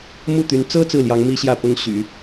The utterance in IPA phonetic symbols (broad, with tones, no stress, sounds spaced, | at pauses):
m u˥˩ t̪ y˧˥ n t͡s ɤ˥ t͡s ɹ̩˥˩ l j ɑ˧˥ ŋ m i˥ ɕ j ä˥˩ p ʊ˥ ŋ ɕ y̰˨˩˦